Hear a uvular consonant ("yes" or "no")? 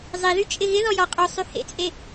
yes